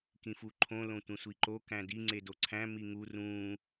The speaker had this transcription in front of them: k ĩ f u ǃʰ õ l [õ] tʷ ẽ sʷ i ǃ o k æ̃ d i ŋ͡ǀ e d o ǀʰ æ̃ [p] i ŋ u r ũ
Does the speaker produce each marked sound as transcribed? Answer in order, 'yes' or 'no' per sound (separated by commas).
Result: yes, no